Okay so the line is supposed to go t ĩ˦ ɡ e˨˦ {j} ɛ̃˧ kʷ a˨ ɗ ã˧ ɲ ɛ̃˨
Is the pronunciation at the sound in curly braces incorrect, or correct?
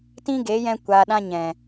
correct